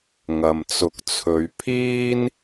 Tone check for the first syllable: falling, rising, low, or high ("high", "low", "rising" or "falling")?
low